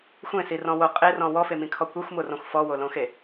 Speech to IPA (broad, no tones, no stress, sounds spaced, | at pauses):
xʷ ẽ s i r ɔ̃ w o qʼ e r ɔ̃ w ɔ f e m ĩ kʰ ɔ kʷ e xʷ m o r ɔ̃ xʷ f ɔ w o l õ x e